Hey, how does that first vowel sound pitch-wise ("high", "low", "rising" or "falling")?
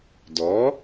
rising